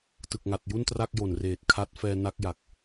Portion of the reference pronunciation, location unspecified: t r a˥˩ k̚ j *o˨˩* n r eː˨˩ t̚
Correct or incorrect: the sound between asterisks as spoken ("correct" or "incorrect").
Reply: correct